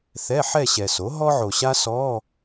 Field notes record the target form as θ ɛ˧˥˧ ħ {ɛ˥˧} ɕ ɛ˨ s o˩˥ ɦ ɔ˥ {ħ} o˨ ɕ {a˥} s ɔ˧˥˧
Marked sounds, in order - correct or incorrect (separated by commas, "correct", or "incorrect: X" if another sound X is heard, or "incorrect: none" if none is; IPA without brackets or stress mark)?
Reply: correct, incorrect: ʕ, correct